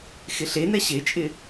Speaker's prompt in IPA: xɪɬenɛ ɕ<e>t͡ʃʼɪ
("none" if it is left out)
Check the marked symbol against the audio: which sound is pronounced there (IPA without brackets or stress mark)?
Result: e